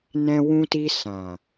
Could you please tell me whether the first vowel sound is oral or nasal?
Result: nasal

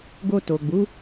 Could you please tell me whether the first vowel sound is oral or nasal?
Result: oral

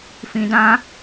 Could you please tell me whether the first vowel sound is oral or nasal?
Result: nasal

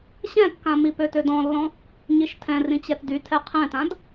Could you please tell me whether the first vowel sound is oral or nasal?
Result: nasal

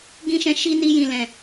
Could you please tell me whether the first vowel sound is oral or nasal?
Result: nasal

